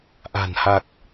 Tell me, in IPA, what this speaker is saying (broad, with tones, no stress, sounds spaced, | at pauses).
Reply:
ʔ a̤˨˩ n h a˨˩ k̚